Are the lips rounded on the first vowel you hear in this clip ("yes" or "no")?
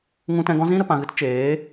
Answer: yes